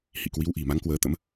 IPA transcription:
h ḭ˧˨ k w i˨˦ w ʔ i̤˨˩ m a˨˦ ŋ k w əː˨˦ t̪ ə̰˧˥ m

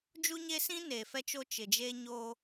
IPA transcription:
d͡ʒ u˦ ɲ e˦ s ĩ˦ n eː˨ f ɛ˦ t͡ʃ o˦ t͡ʃ ɪ˨ d͡ʒ e˦ ɲ oː˦

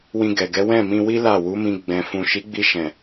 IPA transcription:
w ĩ˧ ɡ ɛ˨ ɡ ɛ˨˦ w ɛ̃˦˨ m ĩ˧ w i˦ l a˦˨ w u˨˦ m ĩ˧ ɡ͡b ɛ̃˨ f ũ˨ ʃ i˨˦ ɡ͡b i˧ ʃ ɛ̃˨

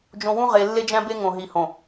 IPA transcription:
d͡ʒ õ˦ w ũ˦ ʁ e˨ lː e˦ d͡ʒ æ̃˦ b e˦ ŋ õ˨ ɦ i˨ h õ˨

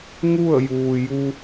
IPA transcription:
ŋ u˥˨ ə̯ j uː˩ j u˧

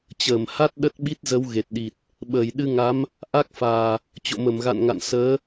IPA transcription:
t͡ɕ əː˧˩ m h a˦˥ t̚ ɗ ə˦˥ t̚ ɓ i˦˥ t̚ z ə˨˦ w ɣ e˨˩ t̚ ɗ i˨˩ t̚ | ɓ əː˧˩ j ɗ ɨ˧ ŋ a˨˦ m | ʔ a˦˥ k̚ f aː˨˩ | t͡ɕ o̰˧˨ m ə˧˩ m ɣ a̰˧˨ n ŋ a̰˧˨ n s əː˨˦

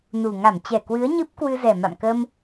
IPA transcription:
n u˨˩ ŋ a˧˩ m t͡ɕ ɛ˧˩ k w ɨ˨˦ ə̯ ɲ ɨ˦˥ p̚ k w ɨ˧ z ɛ˨˩ m a̰˧˨ m k ə˧ m

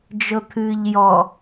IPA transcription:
d͡ʒ ɤ t̪ʰ ɨː ʎ j ɔ

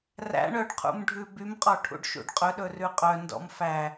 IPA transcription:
r æ̰ ɳ œ ɖ qʰ ṵ m ɖʱ ʉ b y m qʼ ɔ ʈʰ ṵ ɖ ʃ ṵ ɖ qʼ ɵ ɗ ɵ r ʉ qʼ œ n d ɔ̰ m f æ

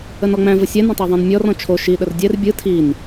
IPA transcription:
ə n ɔ ŋ͡m æ̃ v ə sʲ æ n ə̃ tˤ e ðˤ ɛ̃ n mʲ ɔ r ɔ̃ t͡ʃʰ o ʃ i ɗ ə r dʲ ɛ r bʲ ɯ tʰ i n

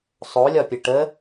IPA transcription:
sˤ o lʲ ɒ pʲ ə ʈ ə

